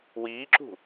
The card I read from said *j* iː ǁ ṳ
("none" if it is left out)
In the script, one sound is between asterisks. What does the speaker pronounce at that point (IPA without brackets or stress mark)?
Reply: w